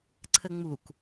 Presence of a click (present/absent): present